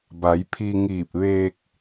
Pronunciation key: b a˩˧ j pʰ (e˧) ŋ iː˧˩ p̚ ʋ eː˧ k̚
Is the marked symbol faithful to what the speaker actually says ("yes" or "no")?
no